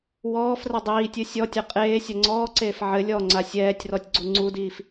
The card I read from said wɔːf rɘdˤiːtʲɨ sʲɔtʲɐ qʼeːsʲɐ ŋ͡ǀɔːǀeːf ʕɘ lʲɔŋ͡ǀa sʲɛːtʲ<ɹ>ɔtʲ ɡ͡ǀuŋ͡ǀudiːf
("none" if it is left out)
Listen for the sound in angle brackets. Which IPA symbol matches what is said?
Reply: r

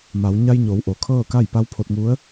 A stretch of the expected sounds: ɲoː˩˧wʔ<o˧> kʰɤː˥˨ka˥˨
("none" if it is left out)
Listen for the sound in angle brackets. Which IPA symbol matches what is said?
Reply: o˩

